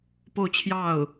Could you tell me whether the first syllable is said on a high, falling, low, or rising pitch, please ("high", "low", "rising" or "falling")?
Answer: falling